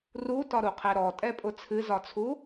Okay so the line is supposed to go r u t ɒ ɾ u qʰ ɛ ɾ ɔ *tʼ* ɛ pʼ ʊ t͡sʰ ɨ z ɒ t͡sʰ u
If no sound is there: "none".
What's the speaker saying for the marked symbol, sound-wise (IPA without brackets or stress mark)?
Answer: tʼ